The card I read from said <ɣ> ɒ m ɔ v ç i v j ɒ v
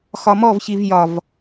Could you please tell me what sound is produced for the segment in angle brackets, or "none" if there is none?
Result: x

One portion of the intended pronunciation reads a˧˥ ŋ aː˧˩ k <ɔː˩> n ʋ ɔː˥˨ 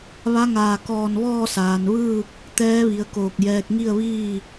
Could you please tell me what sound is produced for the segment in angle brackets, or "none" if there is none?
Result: ɔː˧˩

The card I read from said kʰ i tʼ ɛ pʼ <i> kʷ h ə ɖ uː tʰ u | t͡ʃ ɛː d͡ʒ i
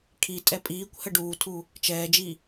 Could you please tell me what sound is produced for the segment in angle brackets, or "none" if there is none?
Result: iː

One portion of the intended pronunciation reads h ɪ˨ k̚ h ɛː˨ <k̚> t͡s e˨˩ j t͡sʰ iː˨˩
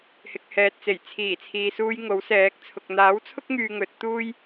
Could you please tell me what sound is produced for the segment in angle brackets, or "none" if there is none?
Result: t̚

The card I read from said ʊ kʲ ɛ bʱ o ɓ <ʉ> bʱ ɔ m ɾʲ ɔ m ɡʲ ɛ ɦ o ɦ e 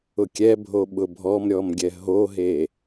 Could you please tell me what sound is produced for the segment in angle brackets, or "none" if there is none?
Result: ʊ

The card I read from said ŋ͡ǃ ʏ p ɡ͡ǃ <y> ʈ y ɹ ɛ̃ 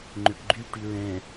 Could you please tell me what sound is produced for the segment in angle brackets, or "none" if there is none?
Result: y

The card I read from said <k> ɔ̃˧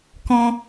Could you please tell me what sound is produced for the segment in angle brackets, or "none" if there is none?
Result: k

